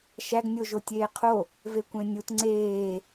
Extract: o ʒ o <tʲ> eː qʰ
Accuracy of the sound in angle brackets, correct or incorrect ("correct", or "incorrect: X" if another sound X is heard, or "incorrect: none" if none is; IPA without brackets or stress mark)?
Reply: correct